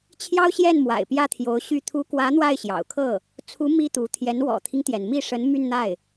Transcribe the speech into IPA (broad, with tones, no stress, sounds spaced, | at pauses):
t͡ɕʰ j ɑ˥ ʊ̯ ɕ j ɛ˥˩ n m w a̰˨˩ ɪ̯ p j ä˥˩ t̪ʰ j o˧˥ ʊ̯ ɕ y˥˩ t̪ʰ u˧˥ k w ä˧˥ n̪ w a˥˩ ɪ̯ ɕ j ɑ̰˨˩ ʊ̯ kʰ ɤ˥˩ | t͡sʰ u˧˥ m i˥ t̪ u˧˥ t̪ʰ j ɛ˧˥ n w ɔ̰˨˩ t̪ʰ i˦ ŋ t̪ j ɛ˩ n m i˥˩ ʂ ə˧˥ n m y˥˧ n n̪ a˥˩ ɪ̯